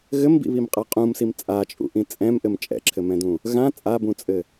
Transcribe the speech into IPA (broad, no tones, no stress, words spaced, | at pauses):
ɣɘmbḭβimqʼa qʼũmsim t͡sʼat͡ʃʼṵʔĩ t͡sʼɛ̃mʔɘm t͡ʃʼɛ̰ǁʰɘmɛ̃dũ | ɣã t͡sʼabũt͡sʼɘ